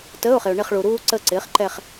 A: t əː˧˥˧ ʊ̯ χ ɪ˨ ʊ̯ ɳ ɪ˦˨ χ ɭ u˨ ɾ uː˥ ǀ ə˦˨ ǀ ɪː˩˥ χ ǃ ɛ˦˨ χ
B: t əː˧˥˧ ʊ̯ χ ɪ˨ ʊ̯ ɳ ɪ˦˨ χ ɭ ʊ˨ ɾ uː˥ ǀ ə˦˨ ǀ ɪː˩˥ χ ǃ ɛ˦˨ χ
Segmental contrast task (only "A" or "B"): A